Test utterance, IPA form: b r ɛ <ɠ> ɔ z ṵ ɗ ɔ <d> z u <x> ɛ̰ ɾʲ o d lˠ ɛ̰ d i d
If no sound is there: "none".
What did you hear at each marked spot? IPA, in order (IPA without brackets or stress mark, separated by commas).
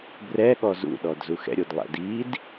ɠ, d, x